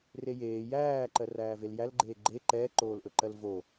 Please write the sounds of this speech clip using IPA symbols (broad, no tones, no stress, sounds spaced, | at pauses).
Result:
r e j eː j æː ǃ ɜ r æː v e l j æ l ɡ͡ǃ eː ɡ͡ǃ e ǃ ɛː ǃ oː l ʔ ɵ ǃ ɜ l v o